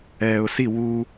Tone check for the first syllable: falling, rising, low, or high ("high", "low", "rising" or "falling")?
low